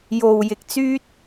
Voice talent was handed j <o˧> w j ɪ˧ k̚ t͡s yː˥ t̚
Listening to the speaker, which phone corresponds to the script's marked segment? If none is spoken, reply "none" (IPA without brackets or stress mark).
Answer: o˧